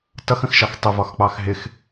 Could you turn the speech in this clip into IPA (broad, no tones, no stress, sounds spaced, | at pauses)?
t ʌ x ə̃ x ʃ ɑ x tˤ ɪ v ɒ x k͡p ɑ x ɦ ɪ x